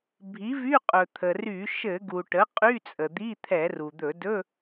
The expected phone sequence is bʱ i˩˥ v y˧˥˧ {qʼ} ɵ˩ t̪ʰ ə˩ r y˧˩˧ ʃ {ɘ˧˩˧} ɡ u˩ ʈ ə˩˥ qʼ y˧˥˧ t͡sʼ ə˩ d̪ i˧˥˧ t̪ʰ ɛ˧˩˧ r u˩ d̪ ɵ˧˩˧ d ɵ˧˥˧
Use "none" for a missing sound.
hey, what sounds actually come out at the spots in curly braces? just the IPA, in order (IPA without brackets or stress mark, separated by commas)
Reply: qʼ, ɘ˧˩˧